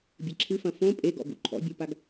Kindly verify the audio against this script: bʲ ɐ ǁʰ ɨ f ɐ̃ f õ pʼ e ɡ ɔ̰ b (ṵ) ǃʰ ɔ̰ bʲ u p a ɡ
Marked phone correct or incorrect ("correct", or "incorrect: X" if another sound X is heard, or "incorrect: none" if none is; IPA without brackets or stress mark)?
correct